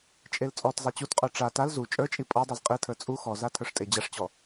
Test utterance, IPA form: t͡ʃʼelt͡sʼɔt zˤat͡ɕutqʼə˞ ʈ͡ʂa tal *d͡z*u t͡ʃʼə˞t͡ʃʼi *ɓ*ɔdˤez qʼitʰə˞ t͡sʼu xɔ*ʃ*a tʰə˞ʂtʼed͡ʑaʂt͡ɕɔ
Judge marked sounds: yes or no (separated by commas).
no, no, no